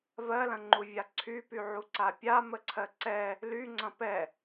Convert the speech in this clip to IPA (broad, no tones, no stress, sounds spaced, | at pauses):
v ɜ l ɐ̃ ŋ͡ǃ u vʲ a ǀʰ y p y ʕ u ǀ a pʲ a m ə ǀʰ ɜ ǀ ɛ | l y ŋ͡ǀ ɐ̃ p ɛ